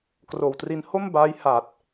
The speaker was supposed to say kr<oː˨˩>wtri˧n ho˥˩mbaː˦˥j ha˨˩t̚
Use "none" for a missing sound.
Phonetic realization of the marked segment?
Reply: oː˨˩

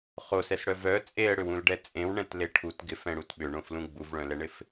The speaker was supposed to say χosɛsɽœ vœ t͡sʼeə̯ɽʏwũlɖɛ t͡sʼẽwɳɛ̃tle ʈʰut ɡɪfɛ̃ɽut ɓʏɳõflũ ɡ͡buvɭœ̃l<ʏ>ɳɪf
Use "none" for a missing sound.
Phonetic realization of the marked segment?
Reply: ɛ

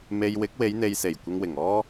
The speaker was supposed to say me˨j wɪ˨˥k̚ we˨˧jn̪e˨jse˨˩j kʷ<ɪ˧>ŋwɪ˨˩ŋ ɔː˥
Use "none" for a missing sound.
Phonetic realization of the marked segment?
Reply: ɪ˧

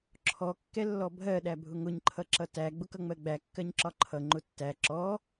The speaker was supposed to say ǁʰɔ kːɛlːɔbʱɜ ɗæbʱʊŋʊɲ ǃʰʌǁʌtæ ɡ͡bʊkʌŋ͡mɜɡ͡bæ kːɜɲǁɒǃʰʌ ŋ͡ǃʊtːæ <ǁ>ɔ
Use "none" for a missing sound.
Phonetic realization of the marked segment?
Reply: ǁ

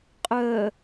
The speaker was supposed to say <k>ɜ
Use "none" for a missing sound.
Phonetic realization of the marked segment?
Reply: qʼ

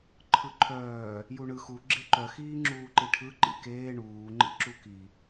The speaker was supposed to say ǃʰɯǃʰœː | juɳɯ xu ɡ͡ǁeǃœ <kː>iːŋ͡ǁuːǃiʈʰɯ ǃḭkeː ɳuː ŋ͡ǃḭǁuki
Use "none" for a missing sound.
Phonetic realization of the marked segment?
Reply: x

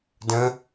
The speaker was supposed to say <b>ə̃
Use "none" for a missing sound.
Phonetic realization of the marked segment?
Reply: d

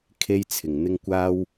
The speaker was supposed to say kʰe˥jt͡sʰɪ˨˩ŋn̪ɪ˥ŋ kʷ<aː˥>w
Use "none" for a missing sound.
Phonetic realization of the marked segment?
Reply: aː˥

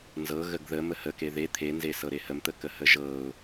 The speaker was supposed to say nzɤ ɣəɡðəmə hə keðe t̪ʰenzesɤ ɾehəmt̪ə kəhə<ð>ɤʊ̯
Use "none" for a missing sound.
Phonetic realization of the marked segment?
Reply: ʒ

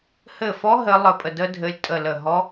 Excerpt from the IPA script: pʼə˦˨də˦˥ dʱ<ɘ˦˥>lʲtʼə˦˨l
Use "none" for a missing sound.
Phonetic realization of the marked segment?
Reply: ɘ˦˥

